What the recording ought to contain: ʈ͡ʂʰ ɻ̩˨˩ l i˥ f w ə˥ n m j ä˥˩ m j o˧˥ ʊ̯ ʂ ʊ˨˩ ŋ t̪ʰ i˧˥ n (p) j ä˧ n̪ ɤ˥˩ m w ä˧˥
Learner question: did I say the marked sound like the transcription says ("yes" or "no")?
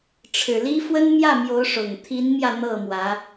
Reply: no